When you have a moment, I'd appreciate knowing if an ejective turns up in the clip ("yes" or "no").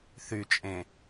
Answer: yes